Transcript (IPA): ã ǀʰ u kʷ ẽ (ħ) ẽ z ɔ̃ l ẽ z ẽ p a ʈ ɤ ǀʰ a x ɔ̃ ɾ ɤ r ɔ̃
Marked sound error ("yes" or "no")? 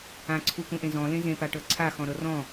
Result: yes